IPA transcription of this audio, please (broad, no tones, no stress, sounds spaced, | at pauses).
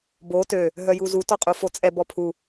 b o t ø | ɦ œ j u z u t ɔ qʼ u f o t͡sʼ ɛ b ɔ pʰ u